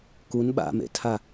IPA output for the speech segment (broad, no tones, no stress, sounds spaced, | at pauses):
k u n ɓ a̰ m ḛ tʰ a